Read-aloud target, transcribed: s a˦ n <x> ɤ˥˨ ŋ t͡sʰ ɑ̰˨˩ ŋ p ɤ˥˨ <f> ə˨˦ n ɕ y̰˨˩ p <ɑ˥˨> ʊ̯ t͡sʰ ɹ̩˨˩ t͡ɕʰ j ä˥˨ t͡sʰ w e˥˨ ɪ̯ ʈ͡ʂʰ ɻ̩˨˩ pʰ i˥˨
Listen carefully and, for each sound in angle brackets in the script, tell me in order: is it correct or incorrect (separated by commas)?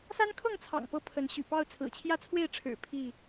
incorrect, incorrect, correct